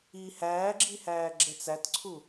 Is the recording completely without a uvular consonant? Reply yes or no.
yes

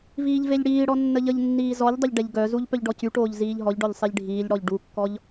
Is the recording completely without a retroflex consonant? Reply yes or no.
no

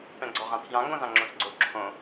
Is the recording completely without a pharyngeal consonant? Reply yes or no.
yes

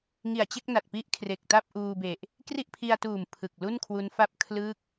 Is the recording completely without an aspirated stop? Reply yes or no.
no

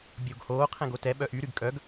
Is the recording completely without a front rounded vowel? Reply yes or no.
no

